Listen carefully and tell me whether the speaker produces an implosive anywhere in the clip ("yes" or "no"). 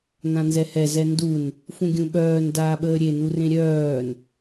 yes